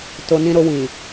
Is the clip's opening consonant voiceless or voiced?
voiceless